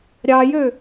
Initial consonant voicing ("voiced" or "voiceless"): voiced